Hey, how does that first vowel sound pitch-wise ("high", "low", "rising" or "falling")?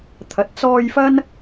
low